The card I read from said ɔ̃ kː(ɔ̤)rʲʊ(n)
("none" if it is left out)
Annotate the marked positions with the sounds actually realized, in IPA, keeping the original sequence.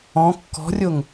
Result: ɔ̤, ŋ

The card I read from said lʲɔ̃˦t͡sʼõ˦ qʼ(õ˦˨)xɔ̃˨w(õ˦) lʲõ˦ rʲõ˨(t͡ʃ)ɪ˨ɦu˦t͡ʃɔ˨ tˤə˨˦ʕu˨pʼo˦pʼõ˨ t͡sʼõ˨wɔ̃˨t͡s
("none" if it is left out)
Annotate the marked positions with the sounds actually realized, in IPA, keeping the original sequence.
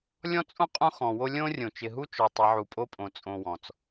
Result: õ˦, o˦, t͡ʃ

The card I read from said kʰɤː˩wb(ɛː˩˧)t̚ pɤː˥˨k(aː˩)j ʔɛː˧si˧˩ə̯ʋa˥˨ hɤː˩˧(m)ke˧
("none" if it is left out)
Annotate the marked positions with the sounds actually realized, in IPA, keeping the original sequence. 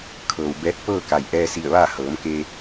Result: ɛː˧˥, a˩, m

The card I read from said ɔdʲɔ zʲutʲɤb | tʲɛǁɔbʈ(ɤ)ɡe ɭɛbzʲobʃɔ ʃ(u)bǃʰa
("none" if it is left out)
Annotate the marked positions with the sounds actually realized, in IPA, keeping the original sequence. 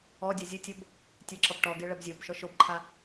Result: ɔ, o

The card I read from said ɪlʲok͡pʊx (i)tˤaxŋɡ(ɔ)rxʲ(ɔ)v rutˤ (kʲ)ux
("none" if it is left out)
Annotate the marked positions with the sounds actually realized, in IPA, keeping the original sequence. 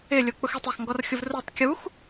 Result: i, ɔ, ʊ, kʲ

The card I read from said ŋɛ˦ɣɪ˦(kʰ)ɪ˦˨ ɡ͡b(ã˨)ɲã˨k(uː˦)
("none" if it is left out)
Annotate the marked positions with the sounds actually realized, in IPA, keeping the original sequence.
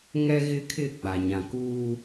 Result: kʰ, a˨, uː˦

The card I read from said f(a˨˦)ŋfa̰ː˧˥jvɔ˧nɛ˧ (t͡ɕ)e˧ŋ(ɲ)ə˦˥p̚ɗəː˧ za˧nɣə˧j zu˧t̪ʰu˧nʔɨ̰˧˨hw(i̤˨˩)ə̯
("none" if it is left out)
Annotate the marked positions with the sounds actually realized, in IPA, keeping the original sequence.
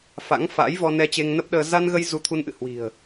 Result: a̰˧˥, t͡ɕ, n, i̤˨˩

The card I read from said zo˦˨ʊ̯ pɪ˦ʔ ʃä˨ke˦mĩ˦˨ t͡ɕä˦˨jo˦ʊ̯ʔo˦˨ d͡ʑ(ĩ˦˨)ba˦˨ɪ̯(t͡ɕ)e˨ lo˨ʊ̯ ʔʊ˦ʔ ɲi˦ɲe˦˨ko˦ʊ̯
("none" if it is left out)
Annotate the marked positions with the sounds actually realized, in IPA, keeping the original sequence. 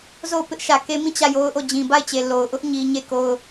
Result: ĩ˨, t͡ɕ

